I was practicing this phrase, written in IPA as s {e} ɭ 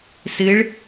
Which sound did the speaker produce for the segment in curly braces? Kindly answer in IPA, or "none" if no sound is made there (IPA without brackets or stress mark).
ɨ